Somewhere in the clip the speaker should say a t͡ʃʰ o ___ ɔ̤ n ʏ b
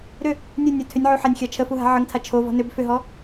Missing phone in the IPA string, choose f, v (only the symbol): v